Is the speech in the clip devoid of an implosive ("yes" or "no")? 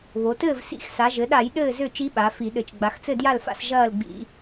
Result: no